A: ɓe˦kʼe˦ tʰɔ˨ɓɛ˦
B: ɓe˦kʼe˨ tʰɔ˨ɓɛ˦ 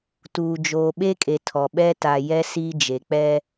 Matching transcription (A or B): B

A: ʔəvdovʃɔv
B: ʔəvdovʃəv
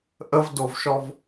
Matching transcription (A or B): A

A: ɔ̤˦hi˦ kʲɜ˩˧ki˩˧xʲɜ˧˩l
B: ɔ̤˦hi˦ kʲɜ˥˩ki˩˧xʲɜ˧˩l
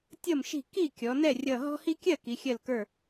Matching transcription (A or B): B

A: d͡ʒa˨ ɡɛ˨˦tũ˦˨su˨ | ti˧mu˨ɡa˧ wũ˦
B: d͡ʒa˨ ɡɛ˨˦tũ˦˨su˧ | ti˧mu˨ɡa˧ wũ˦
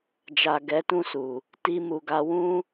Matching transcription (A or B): A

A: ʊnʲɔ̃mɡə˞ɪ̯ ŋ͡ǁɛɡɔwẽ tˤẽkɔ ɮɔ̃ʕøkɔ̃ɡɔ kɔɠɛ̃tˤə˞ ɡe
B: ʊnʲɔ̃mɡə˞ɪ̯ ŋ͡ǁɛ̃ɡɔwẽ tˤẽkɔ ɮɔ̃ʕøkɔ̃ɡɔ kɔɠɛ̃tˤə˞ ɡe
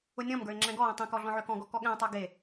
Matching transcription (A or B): B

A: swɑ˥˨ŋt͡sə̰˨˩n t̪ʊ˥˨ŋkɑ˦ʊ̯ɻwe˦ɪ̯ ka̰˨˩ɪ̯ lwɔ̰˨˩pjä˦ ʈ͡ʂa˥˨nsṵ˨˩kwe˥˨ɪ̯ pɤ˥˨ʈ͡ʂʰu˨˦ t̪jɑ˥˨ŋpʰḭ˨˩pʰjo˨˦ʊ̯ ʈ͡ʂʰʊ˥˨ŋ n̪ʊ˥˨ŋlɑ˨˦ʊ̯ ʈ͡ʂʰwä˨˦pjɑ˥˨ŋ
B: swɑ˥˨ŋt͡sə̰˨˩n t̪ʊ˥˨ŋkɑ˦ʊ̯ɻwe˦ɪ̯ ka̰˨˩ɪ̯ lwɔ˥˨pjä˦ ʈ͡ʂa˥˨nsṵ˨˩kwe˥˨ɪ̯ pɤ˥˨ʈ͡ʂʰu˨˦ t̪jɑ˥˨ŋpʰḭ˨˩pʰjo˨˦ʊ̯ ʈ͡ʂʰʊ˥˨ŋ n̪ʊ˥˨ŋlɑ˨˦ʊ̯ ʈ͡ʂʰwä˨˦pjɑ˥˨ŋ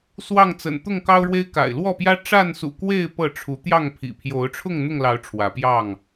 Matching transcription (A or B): B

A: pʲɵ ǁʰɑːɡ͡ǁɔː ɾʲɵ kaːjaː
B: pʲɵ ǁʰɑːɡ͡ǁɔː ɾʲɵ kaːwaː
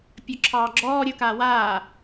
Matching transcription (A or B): B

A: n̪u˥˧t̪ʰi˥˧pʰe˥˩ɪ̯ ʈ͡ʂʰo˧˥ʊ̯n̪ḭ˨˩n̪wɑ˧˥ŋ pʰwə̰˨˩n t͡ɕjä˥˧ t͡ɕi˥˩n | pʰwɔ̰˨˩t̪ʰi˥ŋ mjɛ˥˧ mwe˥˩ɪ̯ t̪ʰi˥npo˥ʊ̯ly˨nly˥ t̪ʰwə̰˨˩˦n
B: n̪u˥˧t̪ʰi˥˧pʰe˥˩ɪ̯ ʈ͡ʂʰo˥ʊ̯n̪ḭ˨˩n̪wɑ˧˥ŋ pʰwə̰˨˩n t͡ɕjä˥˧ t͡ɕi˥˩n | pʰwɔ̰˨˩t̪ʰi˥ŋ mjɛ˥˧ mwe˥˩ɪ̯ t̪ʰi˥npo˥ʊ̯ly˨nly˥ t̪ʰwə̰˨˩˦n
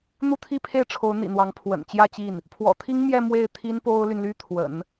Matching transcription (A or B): A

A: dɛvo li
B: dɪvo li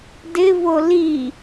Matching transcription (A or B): B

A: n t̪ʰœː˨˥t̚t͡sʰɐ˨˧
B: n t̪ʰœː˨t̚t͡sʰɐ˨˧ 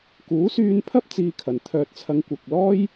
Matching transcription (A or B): B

